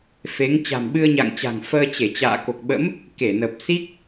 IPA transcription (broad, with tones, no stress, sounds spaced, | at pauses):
f e˨˦ ŋ t͡ɕ a̤˨˩ m ɓ ɨ˧ ə̯ ɲ a̰˧˨ ŋ t͡ɕ a̤˨˩ ŋ f əː˧ t͡ɕ e˧˩ t͡ɕ a̰ː˧˨ k o˨˩ k̚ ɓ ə̰˧˥ m | k e˧˩ n ə˨˩ p̚ s i˦˥ k̚